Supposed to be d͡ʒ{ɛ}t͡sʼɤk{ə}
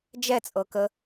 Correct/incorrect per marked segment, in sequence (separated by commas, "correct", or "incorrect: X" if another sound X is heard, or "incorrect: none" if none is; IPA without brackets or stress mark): correct, correct